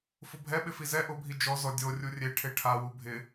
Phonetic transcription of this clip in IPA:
fʊbʱɛ ɓɪfizɛ ʔʊbʱi d͡ʒɔ zɔdʲorʲu rʲeʈʰe ʈʰawu bʱɪ

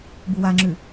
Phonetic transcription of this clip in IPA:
buwaŋ͡ǁʉ

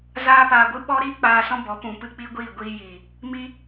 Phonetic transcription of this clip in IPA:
zaː˦paː˧ɡʷɨ˦ ɓɔ˦ɾiː˦k͡paː˧ sɔ̃˦bɔ˨˦pũ˨ pɨ˦k͡pi˦ɡʷiː˦˨ɡʷiː˧ jiː˨ | mi˦

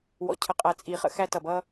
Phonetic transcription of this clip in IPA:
wɔ̰˨cʰə˨qʼæ˨ t͡sʼi˨χə̰˦ xæ˦tʌ˨ bʌ˦

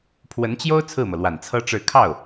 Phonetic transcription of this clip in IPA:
pʰwə˧˥nt͡ɕjo˥ʊ̯ t͡sʰɹ̩˥˩mɤ˩lwa˨˩n t͡sʰɤ˥ʈ͡ʂɻ̩˥˧ kʰɑ˥˩ʊ̯

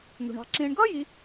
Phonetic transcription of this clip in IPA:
n̪ṳ˩ɳɑ̤˨ ǁĩ˨ɳ ɡʌ˥ji˨

